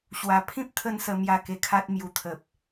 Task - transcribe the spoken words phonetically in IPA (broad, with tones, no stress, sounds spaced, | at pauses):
ɕ w a˨˩ pʰ ĩ˦ p̚ t̪ʰ ə˥˧ n s ə˧ m j a˧ k e˧ kʰ a˦ t̚ m j u˨˩ t̪ʰ ə˨ p̚